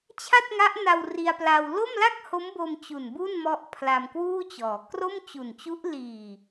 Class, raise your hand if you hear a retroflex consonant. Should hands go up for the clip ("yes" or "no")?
no